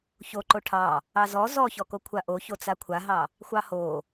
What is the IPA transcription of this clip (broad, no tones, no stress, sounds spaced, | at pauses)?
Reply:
ç o ǃ o ʈʰ ɑ | ɑ z ɔ z ɔ ç ɔ k o kʷʰ a ʔ o ç o t͡s a kʷʰ a ɦ ɑ | xʷ ɑ h o